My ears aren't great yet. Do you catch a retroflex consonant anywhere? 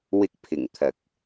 no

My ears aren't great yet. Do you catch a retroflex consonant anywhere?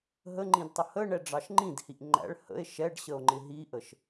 yes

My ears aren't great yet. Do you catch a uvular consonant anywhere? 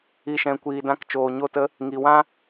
no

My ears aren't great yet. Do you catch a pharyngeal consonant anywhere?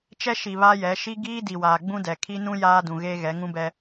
no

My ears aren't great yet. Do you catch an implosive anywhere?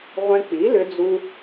no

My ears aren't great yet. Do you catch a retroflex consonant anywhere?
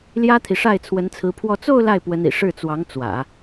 yes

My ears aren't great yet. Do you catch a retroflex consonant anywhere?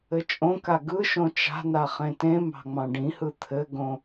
yes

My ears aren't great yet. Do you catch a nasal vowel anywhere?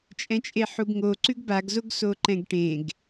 yes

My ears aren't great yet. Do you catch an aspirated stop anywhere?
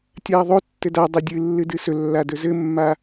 no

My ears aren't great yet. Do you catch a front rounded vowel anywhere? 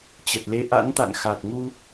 no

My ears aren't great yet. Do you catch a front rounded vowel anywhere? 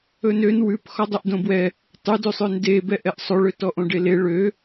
yes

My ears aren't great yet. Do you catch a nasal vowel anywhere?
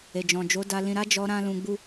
yes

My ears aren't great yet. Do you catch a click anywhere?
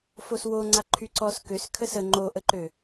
yes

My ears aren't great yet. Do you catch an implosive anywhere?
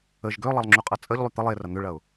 no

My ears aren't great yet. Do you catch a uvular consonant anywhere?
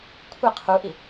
yes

